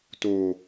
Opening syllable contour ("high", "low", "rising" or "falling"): low